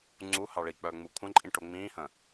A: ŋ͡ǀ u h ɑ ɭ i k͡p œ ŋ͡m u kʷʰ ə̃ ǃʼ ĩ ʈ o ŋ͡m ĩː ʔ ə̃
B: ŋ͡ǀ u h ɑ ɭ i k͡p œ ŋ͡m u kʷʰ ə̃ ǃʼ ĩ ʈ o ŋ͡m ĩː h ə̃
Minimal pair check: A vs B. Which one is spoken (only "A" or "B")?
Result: B